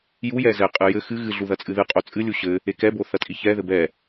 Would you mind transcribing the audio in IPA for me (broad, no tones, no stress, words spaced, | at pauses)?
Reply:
jujɛ zɛqʼɨ jɘ xɨ ɣɨɮu ðɐt͡sʼɨðɨqʼo t͡sʼɨlʲu ɕɘ | ekɛbo θɐtʼiçɛðɘ bɛ